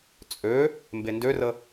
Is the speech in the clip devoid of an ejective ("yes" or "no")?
no